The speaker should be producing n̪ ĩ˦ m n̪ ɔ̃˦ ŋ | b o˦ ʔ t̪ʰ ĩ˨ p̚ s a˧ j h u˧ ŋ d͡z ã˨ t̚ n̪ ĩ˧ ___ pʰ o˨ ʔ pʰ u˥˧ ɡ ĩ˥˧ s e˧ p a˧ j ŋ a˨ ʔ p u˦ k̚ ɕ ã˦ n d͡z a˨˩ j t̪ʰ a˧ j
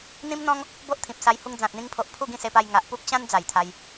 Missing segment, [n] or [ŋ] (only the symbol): ŋ